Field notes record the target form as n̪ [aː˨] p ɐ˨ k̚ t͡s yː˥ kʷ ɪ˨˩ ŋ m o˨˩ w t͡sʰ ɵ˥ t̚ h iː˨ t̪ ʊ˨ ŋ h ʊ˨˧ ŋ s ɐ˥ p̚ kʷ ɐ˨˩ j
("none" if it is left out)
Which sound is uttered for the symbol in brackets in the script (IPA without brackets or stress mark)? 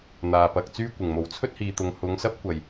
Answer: aː˨